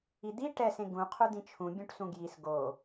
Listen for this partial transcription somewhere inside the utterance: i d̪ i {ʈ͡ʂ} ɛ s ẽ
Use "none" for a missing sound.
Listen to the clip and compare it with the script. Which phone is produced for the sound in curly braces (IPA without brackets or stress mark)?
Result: ʈ